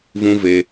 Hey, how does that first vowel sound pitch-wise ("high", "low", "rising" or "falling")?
high